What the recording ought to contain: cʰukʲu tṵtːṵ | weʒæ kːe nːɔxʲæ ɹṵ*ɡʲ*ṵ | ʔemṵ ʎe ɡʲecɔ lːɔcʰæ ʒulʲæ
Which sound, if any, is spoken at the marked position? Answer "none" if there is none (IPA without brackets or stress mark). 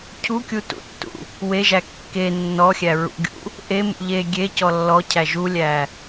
ɡʲ